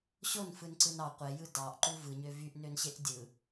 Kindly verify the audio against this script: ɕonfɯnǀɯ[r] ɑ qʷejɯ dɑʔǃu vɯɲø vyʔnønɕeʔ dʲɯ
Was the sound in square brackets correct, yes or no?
no